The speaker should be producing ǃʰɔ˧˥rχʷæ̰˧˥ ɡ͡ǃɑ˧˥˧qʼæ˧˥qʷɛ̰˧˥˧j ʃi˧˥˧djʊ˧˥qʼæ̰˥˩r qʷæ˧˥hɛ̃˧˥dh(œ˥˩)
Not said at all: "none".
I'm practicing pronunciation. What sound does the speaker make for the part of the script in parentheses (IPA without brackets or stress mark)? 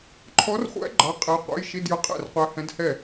ɛ˥˩